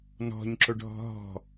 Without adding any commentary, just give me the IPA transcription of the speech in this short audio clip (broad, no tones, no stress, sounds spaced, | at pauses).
n ɔ̤ ɲ ǁ ʊ ɖʱ ɔ̤ ɦ ɔ̤